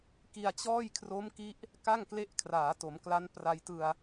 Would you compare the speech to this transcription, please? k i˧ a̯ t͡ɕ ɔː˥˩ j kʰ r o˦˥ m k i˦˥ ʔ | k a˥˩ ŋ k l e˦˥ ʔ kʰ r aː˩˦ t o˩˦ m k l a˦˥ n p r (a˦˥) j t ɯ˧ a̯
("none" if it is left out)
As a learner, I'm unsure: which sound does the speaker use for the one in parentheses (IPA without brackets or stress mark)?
a˧